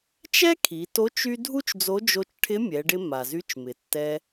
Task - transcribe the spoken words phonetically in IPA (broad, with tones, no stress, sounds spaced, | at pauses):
t͡ʃ ɛ˥ kʰ i˩˧ t o˧˥ t͡ʃ y˥ dʱ u˥ t͡ʃ d͡z o˧˥ d͡ʒ o˧ t͡ʃ ʈʰ ɪ˧˥ mʲ ɛ˩˧ ɖ ɪ˧ m a˩ z y˧˥ t͡ʃ m ɪ˩ tː ɛ˧